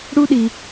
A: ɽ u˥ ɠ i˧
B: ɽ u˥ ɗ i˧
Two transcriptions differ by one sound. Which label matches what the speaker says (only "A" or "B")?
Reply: B